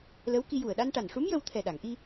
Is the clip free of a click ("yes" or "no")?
yes